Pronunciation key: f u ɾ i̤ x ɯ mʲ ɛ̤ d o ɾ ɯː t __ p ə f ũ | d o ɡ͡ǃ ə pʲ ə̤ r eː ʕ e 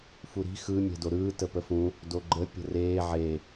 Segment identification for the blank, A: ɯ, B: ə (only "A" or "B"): B